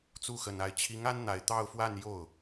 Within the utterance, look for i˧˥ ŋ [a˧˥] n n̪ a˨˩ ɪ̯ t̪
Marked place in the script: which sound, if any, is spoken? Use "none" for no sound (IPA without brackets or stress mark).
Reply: a˥